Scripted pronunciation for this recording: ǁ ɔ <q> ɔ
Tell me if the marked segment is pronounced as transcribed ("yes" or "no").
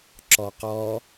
yes